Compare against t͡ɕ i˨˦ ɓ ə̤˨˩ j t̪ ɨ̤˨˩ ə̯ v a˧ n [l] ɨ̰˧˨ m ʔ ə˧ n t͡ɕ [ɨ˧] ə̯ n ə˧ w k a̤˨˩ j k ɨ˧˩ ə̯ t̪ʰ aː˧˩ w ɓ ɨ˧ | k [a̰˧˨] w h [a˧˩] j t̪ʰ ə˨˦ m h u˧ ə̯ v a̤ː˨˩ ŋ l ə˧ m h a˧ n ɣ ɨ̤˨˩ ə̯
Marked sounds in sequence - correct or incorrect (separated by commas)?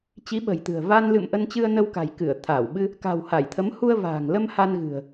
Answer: correct, correct, incorrect, correct